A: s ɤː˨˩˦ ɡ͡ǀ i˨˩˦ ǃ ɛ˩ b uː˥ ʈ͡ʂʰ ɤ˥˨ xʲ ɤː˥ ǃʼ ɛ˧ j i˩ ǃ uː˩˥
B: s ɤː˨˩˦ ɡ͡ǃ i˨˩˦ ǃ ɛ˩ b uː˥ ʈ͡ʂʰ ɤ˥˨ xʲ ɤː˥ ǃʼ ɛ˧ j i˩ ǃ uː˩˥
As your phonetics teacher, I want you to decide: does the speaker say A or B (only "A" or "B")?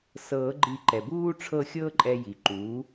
B